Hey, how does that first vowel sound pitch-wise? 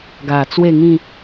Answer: low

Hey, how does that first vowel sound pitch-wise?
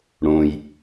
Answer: low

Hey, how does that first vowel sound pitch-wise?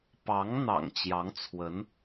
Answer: rising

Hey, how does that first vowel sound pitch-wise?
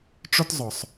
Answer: high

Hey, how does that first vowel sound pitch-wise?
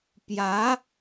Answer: rising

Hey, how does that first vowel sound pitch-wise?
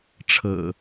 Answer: low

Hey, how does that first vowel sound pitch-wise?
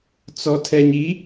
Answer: low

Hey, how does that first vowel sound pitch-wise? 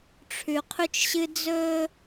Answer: low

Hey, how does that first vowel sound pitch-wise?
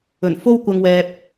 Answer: low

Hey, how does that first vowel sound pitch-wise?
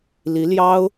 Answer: rising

